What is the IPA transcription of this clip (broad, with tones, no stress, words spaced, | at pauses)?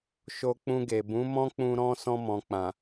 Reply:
ʃo˧k͡pũ˧ɡe˨ bũ˨˦mɔ̃˦k͡pũ˧ ɾɔ̃˦ sɔ̃˧mɔ̃˨k͡pã˨